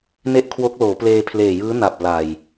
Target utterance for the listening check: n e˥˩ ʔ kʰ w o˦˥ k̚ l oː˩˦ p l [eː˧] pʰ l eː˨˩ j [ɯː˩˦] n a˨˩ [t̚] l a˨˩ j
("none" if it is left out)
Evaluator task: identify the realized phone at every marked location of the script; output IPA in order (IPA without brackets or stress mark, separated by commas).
eː˧, ɯː˦˥, p̚